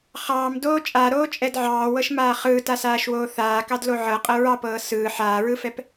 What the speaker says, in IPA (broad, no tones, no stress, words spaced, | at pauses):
χɑːmdoː t͡ʃʼaɾoːt͡ʃʼɛd ʕɑːwɤʃmaː χɯːtasaːʃwoː θaːkɑdlo ʕɤqʼɤ ɹɑpɤː sɯː ħaːɹɯfɛp